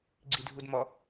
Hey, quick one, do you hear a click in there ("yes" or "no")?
yes